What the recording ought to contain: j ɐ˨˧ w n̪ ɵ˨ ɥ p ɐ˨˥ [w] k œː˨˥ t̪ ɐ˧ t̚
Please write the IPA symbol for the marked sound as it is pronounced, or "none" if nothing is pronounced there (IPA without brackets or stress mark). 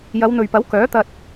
w